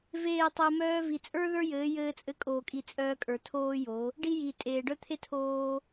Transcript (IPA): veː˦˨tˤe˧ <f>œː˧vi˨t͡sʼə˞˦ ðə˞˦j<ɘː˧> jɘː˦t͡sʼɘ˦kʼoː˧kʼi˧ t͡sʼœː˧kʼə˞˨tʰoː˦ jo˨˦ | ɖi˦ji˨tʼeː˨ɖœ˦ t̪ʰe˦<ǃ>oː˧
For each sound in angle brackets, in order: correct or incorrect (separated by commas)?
incorrect, incorrect, incorrect